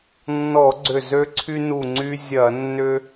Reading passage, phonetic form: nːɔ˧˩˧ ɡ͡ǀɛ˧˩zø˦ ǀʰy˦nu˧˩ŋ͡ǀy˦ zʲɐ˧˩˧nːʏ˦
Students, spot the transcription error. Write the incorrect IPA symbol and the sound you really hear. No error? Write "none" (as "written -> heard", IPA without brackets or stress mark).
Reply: ɛ˧˩ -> ʏ˧˩